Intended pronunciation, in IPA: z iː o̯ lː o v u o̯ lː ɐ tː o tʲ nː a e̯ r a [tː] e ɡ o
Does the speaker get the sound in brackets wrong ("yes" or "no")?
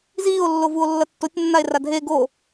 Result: yes